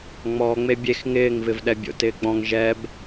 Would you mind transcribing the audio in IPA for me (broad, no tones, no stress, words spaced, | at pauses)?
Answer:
ŋ͡mɔːŋ͡me bʲex ŋɪːŋvɪv ɗɛbʲo̰tɪːɡ͡bɔ̃ŋ ʒɛb